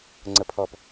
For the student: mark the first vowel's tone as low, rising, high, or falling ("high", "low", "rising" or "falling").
falling